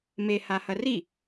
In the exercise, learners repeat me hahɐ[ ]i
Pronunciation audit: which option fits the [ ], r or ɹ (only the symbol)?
r